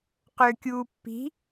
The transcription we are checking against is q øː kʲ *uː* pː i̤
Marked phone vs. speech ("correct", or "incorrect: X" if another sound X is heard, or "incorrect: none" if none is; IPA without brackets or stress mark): correct